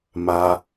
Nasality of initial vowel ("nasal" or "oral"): oral